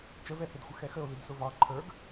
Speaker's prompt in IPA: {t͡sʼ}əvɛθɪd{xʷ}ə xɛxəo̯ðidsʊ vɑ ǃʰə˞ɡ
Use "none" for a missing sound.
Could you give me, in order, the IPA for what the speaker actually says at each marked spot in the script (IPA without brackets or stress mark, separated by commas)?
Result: t͡ʃ, xʷ